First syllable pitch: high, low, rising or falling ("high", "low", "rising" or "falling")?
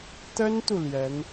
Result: high